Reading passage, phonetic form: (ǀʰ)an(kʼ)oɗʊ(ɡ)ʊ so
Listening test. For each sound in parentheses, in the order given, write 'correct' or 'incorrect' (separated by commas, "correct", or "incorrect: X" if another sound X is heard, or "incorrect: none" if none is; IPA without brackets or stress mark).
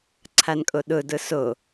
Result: correct, correct, incorrect: d